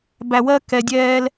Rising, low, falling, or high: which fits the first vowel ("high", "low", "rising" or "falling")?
low